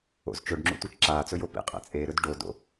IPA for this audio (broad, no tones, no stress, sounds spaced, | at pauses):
o̰ z t͡ʃ ɵ ɖ ŋ͡ǁ ṵ tʷ e t͡ʃ ǁ aː t͡s ɵ j o p ḭ qʼ ḛ t͡sʼ e ɾ ɵ d ɖ o d o̰